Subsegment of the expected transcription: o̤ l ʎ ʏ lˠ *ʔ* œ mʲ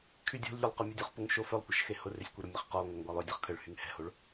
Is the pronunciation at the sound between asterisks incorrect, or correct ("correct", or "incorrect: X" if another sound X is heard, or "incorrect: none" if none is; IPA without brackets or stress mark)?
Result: incorrect: q